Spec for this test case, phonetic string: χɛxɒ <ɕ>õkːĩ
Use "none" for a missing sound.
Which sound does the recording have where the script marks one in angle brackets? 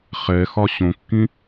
ɕ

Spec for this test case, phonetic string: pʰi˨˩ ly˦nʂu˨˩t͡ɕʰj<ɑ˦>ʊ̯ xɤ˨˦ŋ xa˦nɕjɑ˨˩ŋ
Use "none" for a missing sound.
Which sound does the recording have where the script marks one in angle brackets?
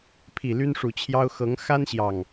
ɑ˦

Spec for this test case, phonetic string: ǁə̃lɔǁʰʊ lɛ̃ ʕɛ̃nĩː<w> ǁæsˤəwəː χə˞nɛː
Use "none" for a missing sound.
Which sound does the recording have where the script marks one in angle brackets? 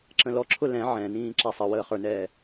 none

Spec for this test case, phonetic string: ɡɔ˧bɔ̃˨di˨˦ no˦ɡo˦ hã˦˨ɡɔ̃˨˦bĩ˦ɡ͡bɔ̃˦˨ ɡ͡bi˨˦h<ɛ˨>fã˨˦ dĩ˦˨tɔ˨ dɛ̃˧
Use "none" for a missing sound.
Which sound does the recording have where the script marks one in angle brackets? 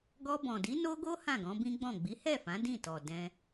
ɛ˦˨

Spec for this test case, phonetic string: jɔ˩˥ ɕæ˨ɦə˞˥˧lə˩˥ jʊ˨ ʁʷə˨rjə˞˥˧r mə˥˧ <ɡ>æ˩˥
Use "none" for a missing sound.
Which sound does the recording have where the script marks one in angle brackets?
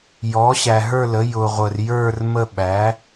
ɓ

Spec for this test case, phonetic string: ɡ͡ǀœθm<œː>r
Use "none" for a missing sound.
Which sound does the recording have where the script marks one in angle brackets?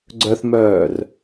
œː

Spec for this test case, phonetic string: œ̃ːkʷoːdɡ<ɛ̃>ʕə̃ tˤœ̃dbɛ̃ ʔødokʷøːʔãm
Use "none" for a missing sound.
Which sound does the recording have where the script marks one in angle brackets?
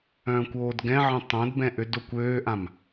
ɛ̃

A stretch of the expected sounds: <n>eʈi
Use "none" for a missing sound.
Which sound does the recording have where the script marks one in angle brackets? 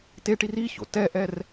t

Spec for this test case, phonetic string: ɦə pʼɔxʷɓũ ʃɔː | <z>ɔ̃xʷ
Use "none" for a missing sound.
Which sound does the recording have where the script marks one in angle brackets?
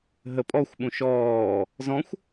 z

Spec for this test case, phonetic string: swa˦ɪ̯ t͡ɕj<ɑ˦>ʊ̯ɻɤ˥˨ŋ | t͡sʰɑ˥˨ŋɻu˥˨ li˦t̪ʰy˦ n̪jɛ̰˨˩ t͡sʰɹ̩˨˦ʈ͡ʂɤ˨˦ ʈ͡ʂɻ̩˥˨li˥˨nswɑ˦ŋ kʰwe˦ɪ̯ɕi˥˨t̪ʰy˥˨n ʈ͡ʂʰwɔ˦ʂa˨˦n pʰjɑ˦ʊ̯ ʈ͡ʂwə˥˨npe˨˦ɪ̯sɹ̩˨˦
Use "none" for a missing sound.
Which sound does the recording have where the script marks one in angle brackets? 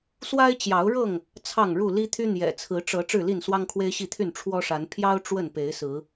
ɑ˨˦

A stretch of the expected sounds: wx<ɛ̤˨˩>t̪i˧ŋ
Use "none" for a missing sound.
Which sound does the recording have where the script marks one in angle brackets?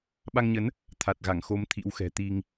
ɛ̤˨˩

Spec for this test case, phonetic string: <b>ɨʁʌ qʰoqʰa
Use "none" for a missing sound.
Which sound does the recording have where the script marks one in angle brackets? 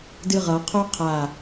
d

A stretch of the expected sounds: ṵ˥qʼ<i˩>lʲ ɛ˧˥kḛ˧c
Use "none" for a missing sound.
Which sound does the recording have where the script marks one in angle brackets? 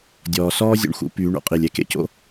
i˩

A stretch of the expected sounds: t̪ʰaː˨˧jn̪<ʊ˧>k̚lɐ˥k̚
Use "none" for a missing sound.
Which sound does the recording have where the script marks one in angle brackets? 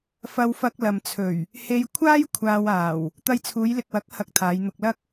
ʊ˧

